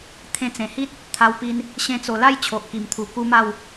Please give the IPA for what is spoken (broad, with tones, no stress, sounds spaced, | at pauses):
t̪ʰ ẽ˧ t͡s ẽ˨˩ h i˦ t̚ | t̪ʰ a˧ w p i˧ n | ɕ ẽ˧ t͡s o˨˩ l a˥˧ j t͡ɕʰ o˨ ʔ k i˨˩ m t̪ʰ u˨˩ k u˦ m a˥˧ w